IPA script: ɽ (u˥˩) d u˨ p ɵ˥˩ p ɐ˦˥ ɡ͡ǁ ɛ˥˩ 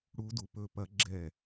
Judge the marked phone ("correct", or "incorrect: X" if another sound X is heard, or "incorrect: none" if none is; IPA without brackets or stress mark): incorrect: u˦˥